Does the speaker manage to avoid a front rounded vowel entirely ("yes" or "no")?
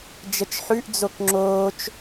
yes